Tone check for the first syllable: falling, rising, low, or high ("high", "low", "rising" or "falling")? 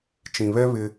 low